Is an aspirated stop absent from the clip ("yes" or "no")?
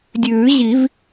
yes